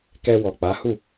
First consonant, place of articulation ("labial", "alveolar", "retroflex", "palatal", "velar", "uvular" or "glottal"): velar